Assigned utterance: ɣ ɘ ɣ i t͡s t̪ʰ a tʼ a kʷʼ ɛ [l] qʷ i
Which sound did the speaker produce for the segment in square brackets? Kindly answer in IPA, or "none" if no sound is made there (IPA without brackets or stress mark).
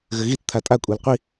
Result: l